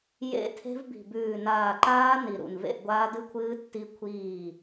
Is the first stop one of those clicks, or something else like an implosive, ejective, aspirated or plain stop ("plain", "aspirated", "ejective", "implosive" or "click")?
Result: aspirated